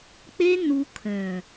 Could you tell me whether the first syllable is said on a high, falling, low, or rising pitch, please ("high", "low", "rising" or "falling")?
high